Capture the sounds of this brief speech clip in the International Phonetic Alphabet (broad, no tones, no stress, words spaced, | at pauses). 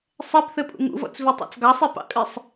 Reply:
sˤɛpθɘpʼṵ ŋṵvɔ̰t͡svitˤɑ̰t͡s ɡɑsˤipɑ̰kʼɨsˤ